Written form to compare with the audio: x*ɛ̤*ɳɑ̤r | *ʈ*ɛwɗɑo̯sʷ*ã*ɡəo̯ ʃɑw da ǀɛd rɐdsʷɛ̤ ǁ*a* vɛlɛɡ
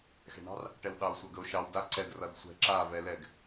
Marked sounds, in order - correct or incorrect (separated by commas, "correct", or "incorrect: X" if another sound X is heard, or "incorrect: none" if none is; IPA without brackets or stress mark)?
correct, correct, incorrect: a, correct